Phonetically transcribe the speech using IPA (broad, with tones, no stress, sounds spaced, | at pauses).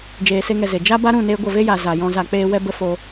d͡ʒ eː˧ s e˦ ŋ ɛ˧ z e˨ d͡ʒ a˦ b a˦ ɾ ũ˦˨ n e˦ ɡʷ ə˦˨ v e˦ j a˨ z a˨ j ɔ̃˧ z a˧ k͡p eː˦ w ɛ˦ b ə˦ f o˧